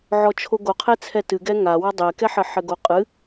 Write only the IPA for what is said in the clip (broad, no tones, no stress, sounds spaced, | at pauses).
ʕ ɔ t͡ʃʰ o ɡ o qʰ e t͡sʰ ɛ t ɨ ɡ ɛ ŋ a w ɐ dˤ e k ɛ ħ ɘ ħ ɘ ɡ o qʼ ɨ